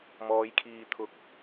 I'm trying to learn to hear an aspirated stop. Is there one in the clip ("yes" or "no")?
yes